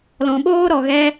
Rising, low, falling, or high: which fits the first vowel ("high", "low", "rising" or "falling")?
low